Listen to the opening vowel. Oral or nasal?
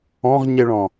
nasal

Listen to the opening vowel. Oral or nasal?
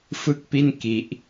oral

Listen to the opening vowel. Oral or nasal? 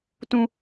nasal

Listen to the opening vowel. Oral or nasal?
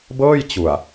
oral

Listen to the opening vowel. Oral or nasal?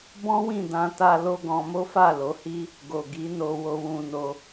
nasal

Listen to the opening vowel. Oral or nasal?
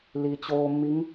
oral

